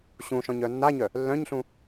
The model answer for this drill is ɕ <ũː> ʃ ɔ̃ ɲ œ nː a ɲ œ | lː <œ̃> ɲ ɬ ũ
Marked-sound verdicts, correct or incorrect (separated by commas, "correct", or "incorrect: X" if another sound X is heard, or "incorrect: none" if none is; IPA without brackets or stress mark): incorrect: ũ, correct